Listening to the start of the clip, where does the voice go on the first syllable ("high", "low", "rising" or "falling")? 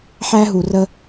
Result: high